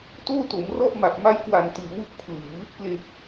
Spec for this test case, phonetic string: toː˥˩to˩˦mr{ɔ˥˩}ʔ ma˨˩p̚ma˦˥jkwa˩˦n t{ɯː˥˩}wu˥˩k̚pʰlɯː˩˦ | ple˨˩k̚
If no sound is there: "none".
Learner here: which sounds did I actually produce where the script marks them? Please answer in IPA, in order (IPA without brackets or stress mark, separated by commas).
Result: ɔ˥˩, ɯː˩˦